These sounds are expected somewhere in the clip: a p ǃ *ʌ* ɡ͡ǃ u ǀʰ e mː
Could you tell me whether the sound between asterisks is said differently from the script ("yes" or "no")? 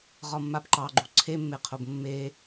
yes